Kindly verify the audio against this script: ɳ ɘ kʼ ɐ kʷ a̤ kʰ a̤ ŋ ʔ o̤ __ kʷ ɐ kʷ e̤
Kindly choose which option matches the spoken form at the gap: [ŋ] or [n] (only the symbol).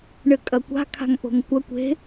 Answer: ŋ